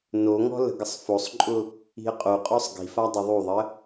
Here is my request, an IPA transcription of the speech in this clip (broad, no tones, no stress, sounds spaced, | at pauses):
n o ŋ ɔ̤ l ə̤ ɡ ə sˤ f o sˤ ǃʼ ʊ | i̤ ə̯ qʼ o qʼ ɔ sˤ ɡ i̤ f a dˤ ʊ ðˤ u ðˤ ə